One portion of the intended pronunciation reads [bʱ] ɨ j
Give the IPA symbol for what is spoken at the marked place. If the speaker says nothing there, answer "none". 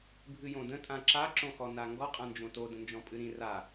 bʱ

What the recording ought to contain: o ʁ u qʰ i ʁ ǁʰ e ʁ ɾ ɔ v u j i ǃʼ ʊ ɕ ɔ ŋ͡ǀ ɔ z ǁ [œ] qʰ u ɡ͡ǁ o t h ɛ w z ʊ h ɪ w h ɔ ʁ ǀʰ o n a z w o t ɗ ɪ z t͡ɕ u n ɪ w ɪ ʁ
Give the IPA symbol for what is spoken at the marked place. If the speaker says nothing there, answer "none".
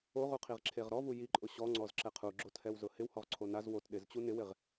ɛ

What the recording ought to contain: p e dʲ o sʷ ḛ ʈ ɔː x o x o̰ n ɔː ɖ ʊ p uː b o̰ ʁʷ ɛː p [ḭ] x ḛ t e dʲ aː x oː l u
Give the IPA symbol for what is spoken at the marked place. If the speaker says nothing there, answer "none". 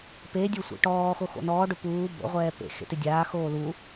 ḛ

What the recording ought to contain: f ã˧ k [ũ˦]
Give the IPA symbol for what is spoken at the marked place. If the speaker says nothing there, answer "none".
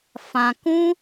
ũ˦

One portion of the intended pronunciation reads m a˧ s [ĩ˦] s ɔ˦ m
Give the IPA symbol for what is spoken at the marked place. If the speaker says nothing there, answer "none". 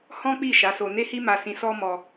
ĩ˧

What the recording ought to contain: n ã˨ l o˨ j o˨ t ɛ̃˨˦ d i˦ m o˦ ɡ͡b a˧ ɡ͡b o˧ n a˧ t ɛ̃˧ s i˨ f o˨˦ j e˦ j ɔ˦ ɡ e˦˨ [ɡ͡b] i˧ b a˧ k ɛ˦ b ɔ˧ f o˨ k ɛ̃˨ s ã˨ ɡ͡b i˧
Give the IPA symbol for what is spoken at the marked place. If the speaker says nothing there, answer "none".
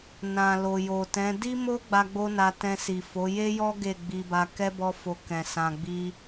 ɡ͡b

